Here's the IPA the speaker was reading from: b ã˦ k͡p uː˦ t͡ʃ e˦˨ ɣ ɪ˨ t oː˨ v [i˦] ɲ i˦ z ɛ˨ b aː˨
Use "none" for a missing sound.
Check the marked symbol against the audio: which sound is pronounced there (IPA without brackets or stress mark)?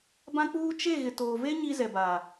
e˦